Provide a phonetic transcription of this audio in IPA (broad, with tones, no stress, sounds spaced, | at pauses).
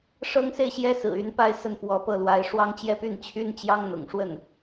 ʂ ɤ˥ ŋ s e˥˩ ɪ̯ ɕ j ɛ˥ s ɹ̩˨˩ y˧˥ n p a˥˧ ɪ̯ s ə˥˩ n f w ɔ˧˥ p ɤ˥˩ l w a˧˥ ɪ̯ ʂ w ɑ˥ ŋ t͡ɕ j ɛ˥ p y˥˩ n t͡ɕʰ y˥ n t͡ɕ j ɑ˥ ŋ n̪ ʊ̰˨˩ ŋ ʂ w ə˥˩ n